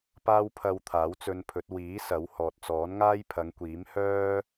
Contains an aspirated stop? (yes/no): yes